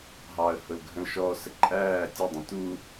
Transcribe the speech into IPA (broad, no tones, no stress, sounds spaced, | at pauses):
ɦ ɑ ə̯ h ʊ l ɡʱ ə̃ l ʃ ɔ s ə ǃʼ æː tʲ ə dˤ ə̃ t u